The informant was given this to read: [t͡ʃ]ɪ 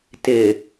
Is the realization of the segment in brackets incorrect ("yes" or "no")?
yes